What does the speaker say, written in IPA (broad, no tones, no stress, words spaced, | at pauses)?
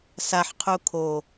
saħqʰu kʰo